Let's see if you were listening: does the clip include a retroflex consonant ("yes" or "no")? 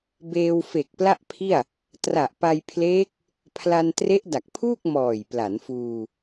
no